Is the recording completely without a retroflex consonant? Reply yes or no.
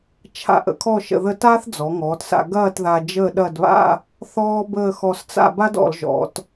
yes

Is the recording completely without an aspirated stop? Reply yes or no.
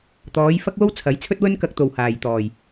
no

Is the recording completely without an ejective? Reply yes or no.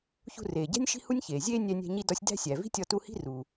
yes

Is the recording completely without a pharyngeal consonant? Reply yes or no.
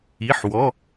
no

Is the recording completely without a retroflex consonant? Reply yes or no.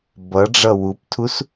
no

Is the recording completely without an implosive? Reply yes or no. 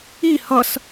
yes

